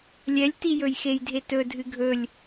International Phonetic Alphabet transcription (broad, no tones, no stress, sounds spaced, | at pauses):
lʲ ɛ lʲ t i j ɵ j x e j dʱ e t ɵ dʱ ɨ ɡʱ ɵ lʲ